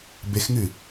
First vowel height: mid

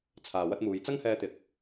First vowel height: low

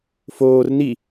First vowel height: mid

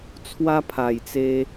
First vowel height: low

